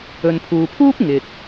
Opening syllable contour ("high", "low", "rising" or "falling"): low